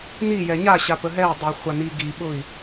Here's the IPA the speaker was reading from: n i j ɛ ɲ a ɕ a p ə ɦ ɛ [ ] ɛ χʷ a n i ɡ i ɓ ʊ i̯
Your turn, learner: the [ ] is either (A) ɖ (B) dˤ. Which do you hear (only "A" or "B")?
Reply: B